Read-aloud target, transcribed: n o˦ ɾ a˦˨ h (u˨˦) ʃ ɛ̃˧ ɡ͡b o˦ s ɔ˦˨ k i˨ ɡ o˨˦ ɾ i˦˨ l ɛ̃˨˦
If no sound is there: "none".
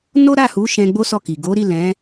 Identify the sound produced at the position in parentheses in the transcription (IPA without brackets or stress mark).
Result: u˨˦